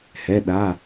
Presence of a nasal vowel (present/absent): absent